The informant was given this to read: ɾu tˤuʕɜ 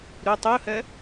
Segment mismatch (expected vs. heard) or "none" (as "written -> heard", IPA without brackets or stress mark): ʕ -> h